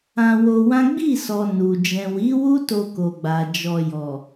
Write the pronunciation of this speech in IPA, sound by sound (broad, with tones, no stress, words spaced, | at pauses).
ã˧wo˧wã˦ ɡ͡bi˦˨sɔ˨ nu˨ d͡ʒɛ̃˨wi˨˦wu˦ to˧ko˨ɡ͡ba˨ d͡ʒɔ˧jɔ˨